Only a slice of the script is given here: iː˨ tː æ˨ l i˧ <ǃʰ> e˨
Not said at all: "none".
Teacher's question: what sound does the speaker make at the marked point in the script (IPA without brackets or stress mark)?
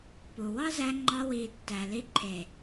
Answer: ǃʰ